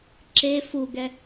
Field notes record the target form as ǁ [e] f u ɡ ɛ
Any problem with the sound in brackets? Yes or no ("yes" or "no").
no